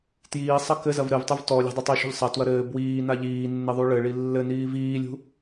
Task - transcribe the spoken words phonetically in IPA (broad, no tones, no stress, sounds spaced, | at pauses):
t j iː sˤ ɐ k ɘ z ɐ v ɾ ɘ v tˤ u v t ɔ lʲ a̤ dˤ ɐ tˤ i ʃ ṳ ʎ sˤ ɐ t w ɐ ɾ ɘː b w iː n a ʎ iː nː ɘ ðˤ u ɭ ɘ ɭ i lː ɘ n iː v iː lʲ ṳ